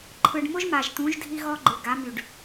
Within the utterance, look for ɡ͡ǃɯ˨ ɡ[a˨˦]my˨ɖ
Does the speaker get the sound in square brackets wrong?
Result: no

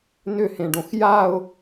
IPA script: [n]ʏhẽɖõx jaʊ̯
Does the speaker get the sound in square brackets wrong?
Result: no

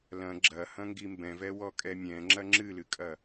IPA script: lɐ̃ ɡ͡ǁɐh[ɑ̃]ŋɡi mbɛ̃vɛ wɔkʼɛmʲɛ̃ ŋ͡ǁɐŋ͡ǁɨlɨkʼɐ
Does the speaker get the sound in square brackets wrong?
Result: yes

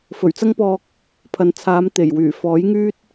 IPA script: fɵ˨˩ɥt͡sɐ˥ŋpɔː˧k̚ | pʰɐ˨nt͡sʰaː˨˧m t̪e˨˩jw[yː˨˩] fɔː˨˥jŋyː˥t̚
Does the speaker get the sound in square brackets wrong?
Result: no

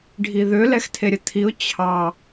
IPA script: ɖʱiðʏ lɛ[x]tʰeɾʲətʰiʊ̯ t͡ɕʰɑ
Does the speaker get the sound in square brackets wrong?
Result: no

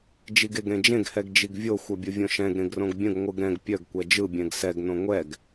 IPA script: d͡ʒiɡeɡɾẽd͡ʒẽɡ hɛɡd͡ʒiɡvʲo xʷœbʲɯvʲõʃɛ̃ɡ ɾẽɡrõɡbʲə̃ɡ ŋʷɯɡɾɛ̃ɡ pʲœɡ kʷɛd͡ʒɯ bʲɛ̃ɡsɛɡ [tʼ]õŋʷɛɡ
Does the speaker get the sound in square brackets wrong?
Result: yes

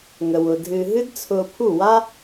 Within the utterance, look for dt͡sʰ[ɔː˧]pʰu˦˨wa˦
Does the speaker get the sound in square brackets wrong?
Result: yes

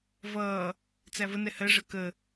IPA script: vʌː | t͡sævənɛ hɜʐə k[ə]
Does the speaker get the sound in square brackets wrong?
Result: no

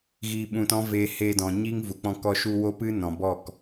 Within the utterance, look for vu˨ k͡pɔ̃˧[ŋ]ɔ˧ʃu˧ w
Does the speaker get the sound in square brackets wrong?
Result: yes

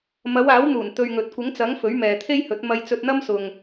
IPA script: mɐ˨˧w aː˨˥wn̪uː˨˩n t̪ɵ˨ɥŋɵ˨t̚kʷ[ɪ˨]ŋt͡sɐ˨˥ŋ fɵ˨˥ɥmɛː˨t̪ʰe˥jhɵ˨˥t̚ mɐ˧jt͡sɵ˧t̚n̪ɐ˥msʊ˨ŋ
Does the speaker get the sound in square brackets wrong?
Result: yes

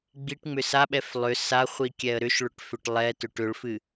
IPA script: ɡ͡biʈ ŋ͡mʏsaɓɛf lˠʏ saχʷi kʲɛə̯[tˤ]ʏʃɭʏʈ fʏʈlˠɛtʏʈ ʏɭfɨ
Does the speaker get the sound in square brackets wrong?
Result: yes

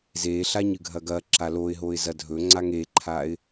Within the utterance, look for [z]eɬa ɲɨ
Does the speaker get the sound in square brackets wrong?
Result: no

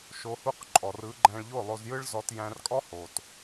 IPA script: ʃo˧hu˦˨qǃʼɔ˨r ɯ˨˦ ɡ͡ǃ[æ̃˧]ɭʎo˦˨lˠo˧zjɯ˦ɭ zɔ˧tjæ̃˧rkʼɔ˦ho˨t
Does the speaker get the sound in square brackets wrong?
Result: no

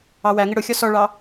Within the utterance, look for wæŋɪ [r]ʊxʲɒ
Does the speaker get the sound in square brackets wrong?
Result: yes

